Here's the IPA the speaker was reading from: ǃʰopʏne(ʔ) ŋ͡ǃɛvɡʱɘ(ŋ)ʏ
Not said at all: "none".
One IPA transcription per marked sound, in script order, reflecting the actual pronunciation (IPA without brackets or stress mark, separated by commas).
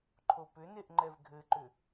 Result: ʔ, ǃ